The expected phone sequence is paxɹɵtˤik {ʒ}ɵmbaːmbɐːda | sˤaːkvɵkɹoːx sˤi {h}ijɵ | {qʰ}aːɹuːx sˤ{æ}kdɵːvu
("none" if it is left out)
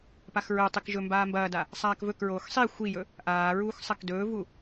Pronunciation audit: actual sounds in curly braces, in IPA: ʒ, xʷ, ʔ, ɐ

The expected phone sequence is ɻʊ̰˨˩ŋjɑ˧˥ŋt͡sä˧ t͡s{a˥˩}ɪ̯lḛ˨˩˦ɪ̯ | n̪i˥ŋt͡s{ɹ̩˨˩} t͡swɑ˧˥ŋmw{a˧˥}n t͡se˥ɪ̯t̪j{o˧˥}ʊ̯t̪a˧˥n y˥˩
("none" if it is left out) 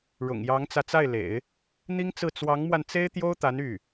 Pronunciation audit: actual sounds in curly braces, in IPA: a˥˩, ɹ̩˥˩, a˧, o˥

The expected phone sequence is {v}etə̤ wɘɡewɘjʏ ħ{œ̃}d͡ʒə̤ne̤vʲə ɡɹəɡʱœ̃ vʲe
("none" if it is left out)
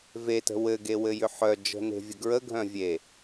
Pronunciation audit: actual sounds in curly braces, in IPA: v, œ

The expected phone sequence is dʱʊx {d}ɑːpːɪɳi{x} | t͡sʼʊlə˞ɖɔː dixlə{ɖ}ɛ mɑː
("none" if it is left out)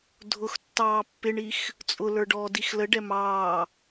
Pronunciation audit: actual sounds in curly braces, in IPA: tː, x, ɖ

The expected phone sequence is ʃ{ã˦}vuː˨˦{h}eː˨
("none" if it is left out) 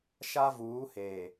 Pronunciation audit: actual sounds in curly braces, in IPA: a˦, h

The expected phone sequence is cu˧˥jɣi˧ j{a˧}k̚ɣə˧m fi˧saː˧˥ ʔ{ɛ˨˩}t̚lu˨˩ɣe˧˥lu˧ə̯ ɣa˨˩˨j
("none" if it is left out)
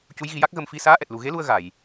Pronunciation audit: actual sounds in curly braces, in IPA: a˦˥, ɛ˨˩

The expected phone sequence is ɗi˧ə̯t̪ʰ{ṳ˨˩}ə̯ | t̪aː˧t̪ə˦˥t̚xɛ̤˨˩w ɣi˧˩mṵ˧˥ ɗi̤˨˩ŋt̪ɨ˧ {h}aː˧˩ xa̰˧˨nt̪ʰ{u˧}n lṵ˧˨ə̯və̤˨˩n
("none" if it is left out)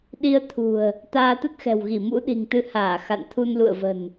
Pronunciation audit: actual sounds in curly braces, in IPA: ṳ˨˩, h, u˧

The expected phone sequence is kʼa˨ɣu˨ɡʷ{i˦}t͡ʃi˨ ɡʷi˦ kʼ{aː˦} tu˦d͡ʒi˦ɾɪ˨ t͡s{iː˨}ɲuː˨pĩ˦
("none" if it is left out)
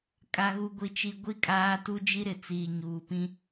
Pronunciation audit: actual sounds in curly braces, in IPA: i˨, aː˦, iː˨

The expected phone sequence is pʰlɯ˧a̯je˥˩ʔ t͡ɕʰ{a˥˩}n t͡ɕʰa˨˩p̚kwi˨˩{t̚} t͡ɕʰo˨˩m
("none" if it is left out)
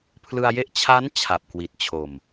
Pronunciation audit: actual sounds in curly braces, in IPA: a˦˥, t̚

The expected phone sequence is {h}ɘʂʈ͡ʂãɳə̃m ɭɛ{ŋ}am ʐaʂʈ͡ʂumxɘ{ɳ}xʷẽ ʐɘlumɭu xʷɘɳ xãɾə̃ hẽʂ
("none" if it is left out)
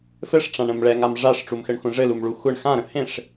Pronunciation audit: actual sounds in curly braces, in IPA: f, ŋ, ɳ

